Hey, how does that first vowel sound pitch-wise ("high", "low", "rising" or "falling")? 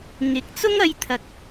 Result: rising